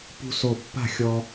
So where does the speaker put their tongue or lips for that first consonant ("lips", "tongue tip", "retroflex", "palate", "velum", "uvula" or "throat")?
lips